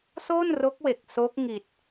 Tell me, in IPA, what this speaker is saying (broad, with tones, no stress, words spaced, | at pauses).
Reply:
so˥˩nro˦˥k̚we˨˩k̚ so˦˥k̚ŋi˨˩t̚